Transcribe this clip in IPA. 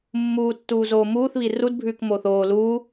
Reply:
mːuːtːuːzoː muːθβi rudbʱʉːk moːθoː luː

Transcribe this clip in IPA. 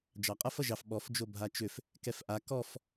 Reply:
d͡ʒɑqʼʌf ʌʒɑf ɓɔf d͡ʒobʱat͡ʃʏf | kɛfʔa kɔf

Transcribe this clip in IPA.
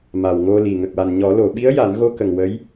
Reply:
ma˨˩wŋo˧li˨˩ ŋə˨˩k̚wa˨˩n ɲɔ˨˩˦ lo˨˩˨ɓi˧˥ə̯ ja˨˩˦nɣo˧ kə˨˩ŋ wə˧˥j

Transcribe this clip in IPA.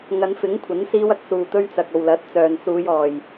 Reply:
ŋɐ˨˧nfɪ˨˥ŋkʷʰɐ˨˥n siː˧wɐ˧k̚ suː˨t̪ɵ˧ɥt͡sɐ˨k̚ o˨wlɐ˨˥t̚ t͡sœː˨nsuː˨˧jɔː˨j

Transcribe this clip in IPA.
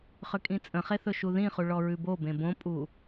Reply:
χʏkʼĩt͡sʼə̃χe θɵʃuðĩχu ɭɔɹʉbobẽ bõpʼu

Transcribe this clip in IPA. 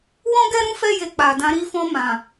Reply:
wɔ̃˦ɡɛ˦ɾũ˦ fɛ˦ je˧k͡pa˨dã˧ ɾi˧fɔ̃˧ mã˨

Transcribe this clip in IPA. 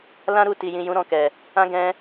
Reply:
lã˦ɾu˦˨ti˨jĩ˨ jũ˨˦ɾɔ̃˦˨kɛ˨ | ã˦ ɡɛ̃˧

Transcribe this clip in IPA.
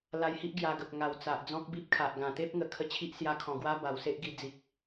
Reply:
la˧jhi˦ʔ ɡja˧ɡə˨p̚ ŋa˨˩w t͡sa˨ʔd͡zɔ̃˦k̚bi˦p̚kʰa˨ʔ ɡã˨˩t̪e˦p̚ ŋə˨˩ kʰə˦t͡ɕʰi˦ʔ sja˧kʰɔ̃˨˩ɡwa˦ ba˨˩wse˦ʔ ɡi˧ d͡zi˨k̚

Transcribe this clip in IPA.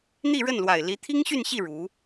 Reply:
n̪i˥˧ɻə˥˩nlwa˨˩ɪ̯ li˧˥t̪ʰi˥ŋɕy˥˧nɕi˥˩ ɻu˧˥

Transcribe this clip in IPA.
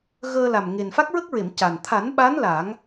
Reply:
ɣəː˧la˨˩m ŋe˨˩n fa˦˥k̚ɹə˦˥k̚ɹe˨˩˨m ca˨˩n t̪ʰa˨˩˦nɓa˧˥n la˨˩˦ŋ

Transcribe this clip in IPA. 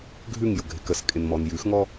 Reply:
ɡʱʉŋ jʊɡʱɪkəs kʼɪnmɔnjʉxŋɔ

